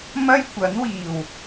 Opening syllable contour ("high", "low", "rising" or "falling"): high